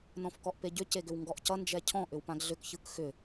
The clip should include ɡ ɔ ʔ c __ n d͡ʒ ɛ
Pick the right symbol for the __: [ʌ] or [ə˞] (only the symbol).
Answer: ʌ